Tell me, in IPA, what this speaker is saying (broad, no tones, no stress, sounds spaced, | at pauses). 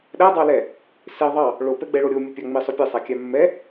ɗ æ dˤ ɑ l ɛ | s e ðˤ ɑ | ɭ o p ɛ ɡ͡b ɛ ɭ o ɾʲ o mʲ e pʲ ɑ ŋ͡m i sˤ ɵ pʲ e sˤ æ kʲ æ mː ɛ